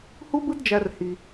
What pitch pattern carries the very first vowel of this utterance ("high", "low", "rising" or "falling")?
high